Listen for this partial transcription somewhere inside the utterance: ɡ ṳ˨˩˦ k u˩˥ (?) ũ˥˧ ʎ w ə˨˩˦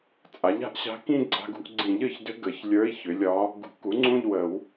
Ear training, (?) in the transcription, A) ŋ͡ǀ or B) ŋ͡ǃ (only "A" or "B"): A